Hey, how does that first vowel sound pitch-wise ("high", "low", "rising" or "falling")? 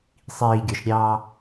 low